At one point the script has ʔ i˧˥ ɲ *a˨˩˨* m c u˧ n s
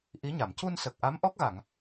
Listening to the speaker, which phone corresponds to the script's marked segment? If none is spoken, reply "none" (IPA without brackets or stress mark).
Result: a˨˩˨